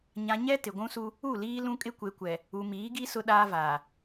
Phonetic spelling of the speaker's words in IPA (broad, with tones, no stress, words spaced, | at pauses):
ɲã˨ɲɛ˦ tɪ˨ɡʷũ˦su˦ | u˦˨liː˦ lũ˦kʼɪ˦kʷe˨kʷɛ˨ | u˨miː˨˦ɡi˦ sʊ˦ɗaː˦vaː˨